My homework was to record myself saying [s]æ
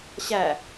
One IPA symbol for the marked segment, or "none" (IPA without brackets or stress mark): ɕ